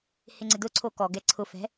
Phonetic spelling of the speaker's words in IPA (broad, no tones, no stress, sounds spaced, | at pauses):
h ɪ ŋ͡ǀ ɪ d ʊ ǀʰ o k ɔ ɡ ɛ ǀʰ ʊ f ɛ̤